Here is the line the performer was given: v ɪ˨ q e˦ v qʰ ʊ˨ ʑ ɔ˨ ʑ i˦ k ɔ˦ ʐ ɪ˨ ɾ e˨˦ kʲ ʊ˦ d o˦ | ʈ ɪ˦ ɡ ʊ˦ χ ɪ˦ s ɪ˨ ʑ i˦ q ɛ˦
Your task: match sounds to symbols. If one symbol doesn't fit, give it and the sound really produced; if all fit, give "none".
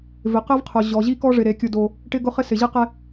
none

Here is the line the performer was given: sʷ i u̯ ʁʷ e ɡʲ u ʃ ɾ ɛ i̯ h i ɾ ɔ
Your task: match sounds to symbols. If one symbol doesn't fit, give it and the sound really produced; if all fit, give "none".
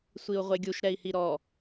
none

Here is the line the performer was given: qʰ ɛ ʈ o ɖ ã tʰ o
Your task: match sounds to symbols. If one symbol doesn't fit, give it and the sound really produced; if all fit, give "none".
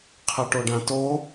tʰ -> t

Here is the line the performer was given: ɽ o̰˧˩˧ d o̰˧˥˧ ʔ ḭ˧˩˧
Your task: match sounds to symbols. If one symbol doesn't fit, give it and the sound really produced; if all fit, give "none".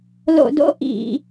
ɽ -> l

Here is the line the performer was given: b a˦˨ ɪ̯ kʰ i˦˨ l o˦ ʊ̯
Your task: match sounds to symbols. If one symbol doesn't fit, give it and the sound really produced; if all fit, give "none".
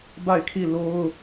none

